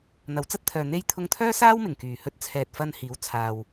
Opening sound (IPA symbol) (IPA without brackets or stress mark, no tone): n̪